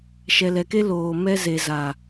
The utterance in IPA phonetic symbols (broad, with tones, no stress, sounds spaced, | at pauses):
ʃ ɛ˨ l ɛ˨ k e˦ l oː˨ m ɛ˦ z e˨ z a˨